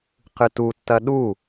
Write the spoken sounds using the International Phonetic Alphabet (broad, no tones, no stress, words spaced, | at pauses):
qɨtutːɐ ɗu